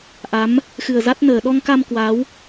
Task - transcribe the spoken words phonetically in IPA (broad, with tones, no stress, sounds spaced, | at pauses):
ʔ a˨˦ m | x ɨ˨˩ ə̯ z a˦˥ t̚ n əː˨˩ ɗ ɔ˧ ŋ k a˧ m k w a˨˦ w